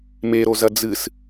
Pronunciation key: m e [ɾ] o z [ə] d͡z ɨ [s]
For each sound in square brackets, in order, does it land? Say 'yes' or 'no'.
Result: yes, no, yes

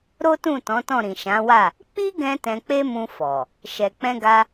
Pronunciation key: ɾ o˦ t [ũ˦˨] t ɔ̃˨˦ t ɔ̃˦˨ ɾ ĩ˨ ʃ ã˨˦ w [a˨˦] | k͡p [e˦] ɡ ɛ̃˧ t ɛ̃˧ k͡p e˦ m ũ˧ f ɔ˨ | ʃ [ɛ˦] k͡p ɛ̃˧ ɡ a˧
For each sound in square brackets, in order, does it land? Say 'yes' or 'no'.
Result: yes, no, no, no

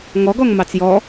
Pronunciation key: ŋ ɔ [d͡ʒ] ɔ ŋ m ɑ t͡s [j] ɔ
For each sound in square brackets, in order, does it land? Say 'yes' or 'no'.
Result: no, yes

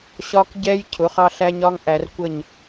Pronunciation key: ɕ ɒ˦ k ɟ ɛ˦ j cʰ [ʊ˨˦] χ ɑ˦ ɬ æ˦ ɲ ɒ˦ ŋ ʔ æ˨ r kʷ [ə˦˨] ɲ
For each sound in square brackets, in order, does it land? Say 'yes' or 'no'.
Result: yes, yes

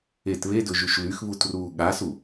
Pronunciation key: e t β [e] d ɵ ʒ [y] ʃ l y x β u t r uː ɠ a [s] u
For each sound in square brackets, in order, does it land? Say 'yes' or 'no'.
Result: yes, yes, yes

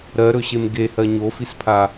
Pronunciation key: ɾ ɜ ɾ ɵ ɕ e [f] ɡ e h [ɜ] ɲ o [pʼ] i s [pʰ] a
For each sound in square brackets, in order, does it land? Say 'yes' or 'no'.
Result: no, yes, no, yes

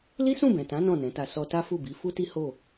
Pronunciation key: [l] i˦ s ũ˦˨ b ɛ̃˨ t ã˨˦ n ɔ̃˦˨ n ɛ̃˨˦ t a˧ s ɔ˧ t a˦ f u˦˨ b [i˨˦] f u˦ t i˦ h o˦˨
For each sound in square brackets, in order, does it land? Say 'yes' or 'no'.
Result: yes, yes

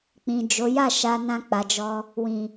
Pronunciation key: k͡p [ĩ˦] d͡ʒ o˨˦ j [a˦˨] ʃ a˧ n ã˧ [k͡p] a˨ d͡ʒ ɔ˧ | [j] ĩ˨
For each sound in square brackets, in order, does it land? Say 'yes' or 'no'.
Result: no, yes, yes, no

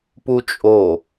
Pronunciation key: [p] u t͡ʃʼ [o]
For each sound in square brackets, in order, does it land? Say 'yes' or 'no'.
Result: yes, yes

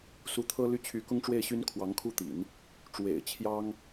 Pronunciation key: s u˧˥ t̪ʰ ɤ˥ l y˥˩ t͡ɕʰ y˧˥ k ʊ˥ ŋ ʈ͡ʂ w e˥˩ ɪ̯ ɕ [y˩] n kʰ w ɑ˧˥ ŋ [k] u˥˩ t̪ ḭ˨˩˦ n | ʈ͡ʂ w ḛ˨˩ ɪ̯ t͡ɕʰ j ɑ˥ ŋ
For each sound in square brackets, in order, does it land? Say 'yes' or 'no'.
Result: no, no

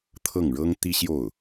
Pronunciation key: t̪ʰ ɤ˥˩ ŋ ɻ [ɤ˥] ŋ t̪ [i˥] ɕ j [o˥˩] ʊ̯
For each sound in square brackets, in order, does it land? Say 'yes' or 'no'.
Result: yes, yes, yes

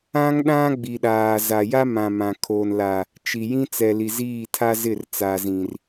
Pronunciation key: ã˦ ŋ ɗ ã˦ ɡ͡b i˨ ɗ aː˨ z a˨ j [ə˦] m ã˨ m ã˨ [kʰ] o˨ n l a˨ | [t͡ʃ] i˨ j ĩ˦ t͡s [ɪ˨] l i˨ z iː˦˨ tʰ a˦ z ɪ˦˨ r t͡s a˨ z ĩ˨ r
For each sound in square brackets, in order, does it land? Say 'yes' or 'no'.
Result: no, yes, yes, no

